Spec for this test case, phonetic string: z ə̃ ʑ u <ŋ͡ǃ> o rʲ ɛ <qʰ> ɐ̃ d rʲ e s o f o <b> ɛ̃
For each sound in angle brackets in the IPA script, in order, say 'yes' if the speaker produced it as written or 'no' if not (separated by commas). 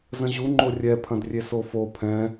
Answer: yes, no, no